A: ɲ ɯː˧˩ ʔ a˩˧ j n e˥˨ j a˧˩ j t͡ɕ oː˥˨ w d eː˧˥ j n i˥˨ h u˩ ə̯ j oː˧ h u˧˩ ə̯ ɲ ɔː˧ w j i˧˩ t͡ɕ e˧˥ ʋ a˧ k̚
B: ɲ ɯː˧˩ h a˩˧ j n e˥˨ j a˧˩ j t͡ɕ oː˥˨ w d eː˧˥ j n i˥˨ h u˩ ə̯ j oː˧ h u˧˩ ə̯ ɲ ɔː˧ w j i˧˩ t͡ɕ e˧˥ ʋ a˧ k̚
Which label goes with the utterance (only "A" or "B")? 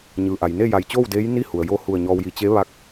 A